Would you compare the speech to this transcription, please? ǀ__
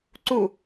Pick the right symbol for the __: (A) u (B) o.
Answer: A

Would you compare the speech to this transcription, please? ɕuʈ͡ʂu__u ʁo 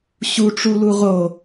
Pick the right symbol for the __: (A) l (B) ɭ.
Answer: A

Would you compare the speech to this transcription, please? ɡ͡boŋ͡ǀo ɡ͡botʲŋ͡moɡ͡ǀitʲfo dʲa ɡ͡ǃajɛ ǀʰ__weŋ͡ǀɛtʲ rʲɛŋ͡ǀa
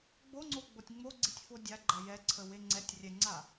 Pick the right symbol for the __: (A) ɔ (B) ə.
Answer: B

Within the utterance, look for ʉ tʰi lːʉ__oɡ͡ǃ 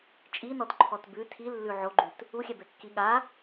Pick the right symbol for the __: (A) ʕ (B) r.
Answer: A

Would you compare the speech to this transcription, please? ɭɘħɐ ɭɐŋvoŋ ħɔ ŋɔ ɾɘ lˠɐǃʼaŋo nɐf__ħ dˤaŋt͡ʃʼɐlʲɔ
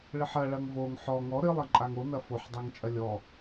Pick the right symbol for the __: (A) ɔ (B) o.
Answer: B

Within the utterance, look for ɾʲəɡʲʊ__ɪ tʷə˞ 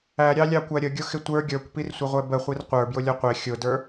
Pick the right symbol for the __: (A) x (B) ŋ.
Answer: A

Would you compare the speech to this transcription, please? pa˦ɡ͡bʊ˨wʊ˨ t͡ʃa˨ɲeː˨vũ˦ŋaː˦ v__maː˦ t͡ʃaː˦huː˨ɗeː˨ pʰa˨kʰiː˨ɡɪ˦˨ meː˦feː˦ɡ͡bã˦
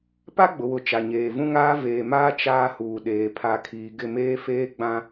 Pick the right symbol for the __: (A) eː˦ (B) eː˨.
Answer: B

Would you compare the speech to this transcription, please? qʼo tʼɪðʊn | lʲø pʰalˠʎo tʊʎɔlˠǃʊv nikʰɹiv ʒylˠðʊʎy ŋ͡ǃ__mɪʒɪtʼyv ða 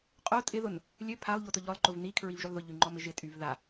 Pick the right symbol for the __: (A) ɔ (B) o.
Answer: A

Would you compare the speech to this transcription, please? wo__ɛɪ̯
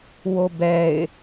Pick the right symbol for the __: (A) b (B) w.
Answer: A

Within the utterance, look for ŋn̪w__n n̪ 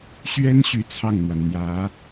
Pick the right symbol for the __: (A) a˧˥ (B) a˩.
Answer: B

